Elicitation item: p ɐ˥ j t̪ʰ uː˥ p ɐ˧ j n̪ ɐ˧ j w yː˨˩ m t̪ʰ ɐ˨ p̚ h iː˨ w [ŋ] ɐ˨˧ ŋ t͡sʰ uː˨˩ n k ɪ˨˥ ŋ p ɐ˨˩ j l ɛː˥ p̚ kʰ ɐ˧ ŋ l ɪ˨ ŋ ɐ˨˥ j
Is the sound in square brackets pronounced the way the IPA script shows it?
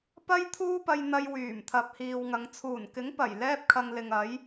yes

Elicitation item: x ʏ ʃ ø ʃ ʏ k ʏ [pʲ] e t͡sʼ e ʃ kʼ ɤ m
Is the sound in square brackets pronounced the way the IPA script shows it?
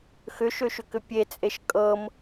yes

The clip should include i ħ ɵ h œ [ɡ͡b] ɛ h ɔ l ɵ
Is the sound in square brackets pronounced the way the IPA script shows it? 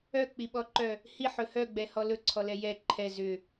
yes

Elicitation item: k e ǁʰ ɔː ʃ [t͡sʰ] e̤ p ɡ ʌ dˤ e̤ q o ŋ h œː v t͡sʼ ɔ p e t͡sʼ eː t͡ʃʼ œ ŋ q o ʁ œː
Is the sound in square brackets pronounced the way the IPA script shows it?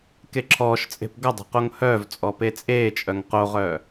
no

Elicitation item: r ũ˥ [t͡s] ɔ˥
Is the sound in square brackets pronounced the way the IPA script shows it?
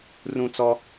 yes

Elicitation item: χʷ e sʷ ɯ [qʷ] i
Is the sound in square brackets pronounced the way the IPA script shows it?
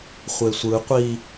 yes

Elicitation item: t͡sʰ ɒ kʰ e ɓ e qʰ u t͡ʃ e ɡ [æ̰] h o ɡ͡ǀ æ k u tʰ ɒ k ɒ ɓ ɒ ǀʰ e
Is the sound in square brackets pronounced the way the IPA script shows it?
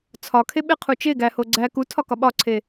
no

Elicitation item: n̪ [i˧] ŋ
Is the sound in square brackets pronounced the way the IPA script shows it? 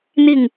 no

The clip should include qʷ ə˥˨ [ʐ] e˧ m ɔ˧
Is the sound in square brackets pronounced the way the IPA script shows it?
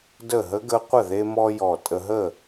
no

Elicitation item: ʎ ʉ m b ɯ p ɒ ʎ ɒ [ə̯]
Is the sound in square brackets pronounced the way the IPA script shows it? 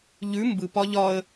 yes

